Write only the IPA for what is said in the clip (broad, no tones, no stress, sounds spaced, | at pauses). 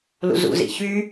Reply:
l ṵ z ṵ z ḭ ç y